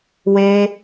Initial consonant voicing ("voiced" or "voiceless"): voiced